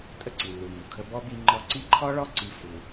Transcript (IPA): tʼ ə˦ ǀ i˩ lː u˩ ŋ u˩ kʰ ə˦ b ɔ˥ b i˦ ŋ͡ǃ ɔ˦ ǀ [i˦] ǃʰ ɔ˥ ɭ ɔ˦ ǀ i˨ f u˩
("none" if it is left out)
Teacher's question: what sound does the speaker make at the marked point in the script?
i˦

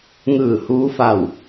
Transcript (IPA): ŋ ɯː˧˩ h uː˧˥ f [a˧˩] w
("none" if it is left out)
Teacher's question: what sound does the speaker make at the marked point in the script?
a˧˩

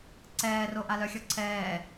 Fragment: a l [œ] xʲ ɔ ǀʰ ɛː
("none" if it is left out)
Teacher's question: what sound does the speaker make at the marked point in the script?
œ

